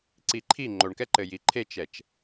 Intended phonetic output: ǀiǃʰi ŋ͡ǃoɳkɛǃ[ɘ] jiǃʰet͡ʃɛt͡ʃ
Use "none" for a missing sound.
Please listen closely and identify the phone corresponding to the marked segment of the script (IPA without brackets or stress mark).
ɘ